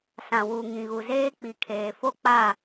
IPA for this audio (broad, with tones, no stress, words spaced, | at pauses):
sã˨wu˨ŋĩ˨ɣu˨ zeː˦k͡pi˨kʰeː˨ fo˦k͡pa˦˨